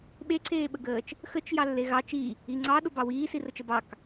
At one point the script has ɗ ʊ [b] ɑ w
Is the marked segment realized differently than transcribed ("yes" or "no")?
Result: no